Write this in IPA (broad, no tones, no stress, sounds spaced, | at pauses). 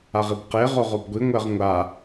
a ʁ i b q e ʁ o ʁ o b ɡʷ i ŋʷ ɛ ʁ ŋʷ a